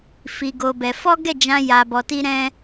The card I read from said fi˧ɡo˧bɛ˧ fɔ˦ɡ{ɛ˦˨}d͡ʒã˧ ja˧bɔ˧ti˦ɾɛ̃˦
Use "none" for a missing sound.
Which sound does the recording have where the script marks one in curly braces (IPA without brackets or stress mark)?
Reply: ɛ˦˨